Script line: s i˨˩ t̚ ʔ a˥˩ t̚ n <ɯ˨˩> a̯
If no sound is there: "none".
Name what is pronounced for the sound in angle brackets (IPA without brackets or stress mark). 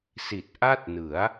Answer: ɯ˩˦